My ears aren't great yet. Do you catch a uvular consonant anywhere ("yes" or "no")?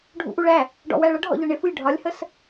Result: no